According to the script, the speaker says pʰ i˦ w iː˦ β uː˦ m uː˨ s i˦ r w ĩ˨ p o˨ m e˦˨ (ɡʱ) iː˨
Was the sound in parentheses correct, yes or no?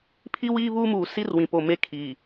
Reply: no